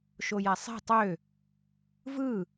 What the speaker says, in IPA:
ʃ o j æ sˤ e̤ tˤ ø | v ɯ

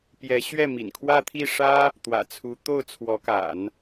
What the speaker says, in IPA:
p j ɛ˧˥ ɕ ɥ ɛ˥˩ m ḭ˨˩ n kʰ w ä˥˧ t̪ʰ i˥˩ ʂ ä˥ | t̪ w ä̰˨˩ t͡sʰ u˧˥ t̪ o˥˩ ʊ̯ t͡sʰ w ɔ˧˥ k a̰˨˩˦ n

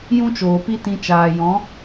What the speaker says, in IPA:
j ũ˦ t͡ʃ oː˨ p i˦ t ĩ˧ t͡ʃ aː˨ j ɔ̃˨˦

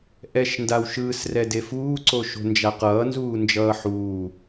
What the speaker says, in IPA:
ʔ ɛ ʃ n d a w ʃ ɯː s r ɛ d e f uː ǀ o ʃ o̤ n d͡ʒ a q ʌː n z uː n d͡ʒ ʌː ħ uː

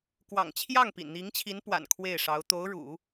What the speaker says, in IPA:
k w ɑ̰˨˩ ŋ t͡ɕʰ j ɑ˥˩ ŋ p ḭ˨˩ n n̪ i˧˥ ŋ t͡ɕʰ i˧˥ n p w a̰˨˩ n kʰ w e˥˩ ɪ̯ ʂ ɑ˧˥ ʊ̯ t̪ o˧˥ ʊ̯ ɻ ṵ˨˩˦

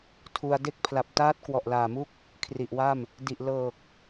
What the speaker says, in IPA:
tʰ u˧ a̯ d e˦˥ k̚ pʰ l a˨˩ p̚ t aː˦˥ t̚ k w ɔ˨˩ ʔ l aː˨˩ m u˥˩ k̚ | kʰ r i˨˩ ʔ w a˥˩ m | d i˨˩ ʔ l ɤː˨˩ k̚

